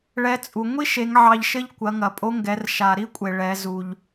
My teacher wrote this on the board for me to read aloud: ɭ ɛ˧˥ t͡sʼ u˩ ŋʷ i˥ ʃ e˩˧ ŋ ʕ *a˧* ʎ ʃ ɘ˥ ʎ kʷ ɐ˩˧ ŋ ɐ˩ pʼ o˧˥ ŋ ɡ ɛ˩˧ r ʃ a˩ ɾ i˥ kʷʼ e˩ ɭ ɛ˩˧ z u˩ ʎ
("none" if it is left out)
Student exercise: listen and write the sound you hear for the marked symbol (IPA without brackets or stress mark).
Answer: ɑ˧